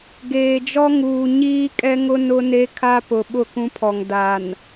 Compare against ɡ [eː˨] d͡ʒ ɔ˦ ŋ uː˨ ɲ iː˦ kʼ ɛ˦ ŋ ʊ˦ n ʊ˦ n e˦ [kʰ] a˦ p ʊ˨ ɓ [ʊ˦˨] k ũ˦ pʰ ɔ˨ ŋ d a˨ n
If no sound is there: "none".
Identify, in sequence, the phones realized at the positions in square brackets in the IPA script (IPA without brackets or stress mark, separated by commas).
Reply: eː˨, kʰ, ʊ˦˨